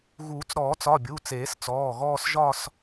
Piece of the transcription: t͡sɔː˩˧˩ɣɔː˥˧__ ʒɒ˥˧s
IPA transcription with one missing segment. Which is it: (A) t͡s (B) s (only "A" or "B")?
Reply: B